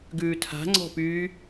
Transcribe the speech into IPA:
ɡ ʉː tʰ a̤ ŋ͡ǀ ɔ̤ p yː

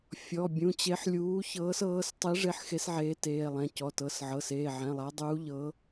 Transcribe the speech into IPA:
fʲ ɔ˩˧˩ bʲ ũ˩˧˩ t͡ɕ e˨˥ ħ lʲ uː˨˥ ç ɤː˨˥ s ɤː˨˥ s tˤ i˨˥ ʐ e˨˥ ħ x e˨˥ s ʕ eː˨˥ t eː˩˧˩ lˠ ɛ̃˩˧˩ c ɔ˩˧˩ t ɤ˩˧˩ s ʕ ɤ˩˧˩ s eː˩˧˩ ʕ ɛ̃˩˧˩ lˠ a˨˥ dˤ uː˨˥ ʎ ɤ˨˥

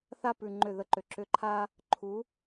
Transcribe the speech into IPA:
θ a˦ p ʉ˨ ŋ͡ǃ ʏ˦˨ ð ə˧ ǃ ʏ˨ ǁ ʏ˧ ǃʰ a˦ | ǃʰ u˨˦

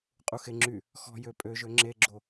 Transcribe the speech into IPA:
qʼ u x e ŋ͡ǁ y | x ɔ̤ j ø pʼ ø ʒ ø ŋ͡ǁ e ɡ͡ǁ o

